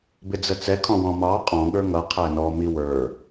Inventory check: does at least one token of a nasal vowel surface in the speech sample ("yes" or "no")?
yes